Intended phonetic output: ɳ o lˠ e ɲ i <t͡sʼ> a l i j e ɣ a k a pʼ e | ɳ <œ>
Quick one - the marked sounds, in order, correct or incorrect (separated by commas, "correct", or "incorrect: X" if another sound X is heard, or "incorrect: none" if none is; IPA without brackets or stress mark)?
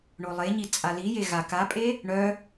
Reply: correct, correct